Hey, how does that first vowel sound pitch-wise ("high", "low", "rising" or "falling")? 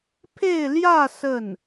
falling